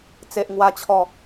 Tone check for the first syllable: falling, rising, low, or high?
low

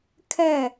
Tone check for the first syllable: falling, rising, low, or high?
falling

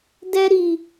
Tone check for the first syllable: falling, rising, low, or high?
high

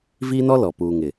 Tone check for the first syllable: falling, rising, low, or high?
high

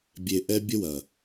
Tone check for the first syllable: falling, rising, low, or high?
low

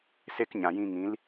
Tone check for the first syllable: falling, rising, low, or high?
high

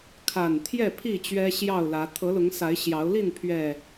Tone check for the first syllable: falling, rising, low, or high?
low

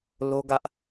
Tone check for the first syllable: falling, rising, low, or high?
high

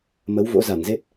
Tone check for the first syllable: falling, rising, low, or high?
rising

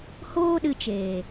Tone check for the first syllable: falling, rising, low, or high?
high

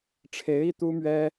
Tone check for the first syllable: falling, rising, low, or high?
rising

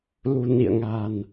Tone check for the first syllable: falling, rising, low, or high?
low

